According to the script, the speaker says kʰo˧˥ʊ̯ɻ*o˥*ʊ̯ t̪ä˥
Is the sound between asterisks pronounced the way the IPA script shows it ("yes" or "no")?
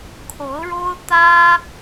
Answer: yes